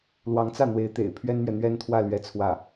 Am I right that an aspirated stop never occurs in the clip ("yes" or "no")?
no